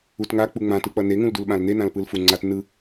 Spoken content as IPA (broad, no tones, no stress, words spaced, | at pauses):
utŋa k͡puŋ͡mã tɯk͡pʌne ŋũldulɓãln̪e nãlpɯlfuŋ͡ǀat nɯ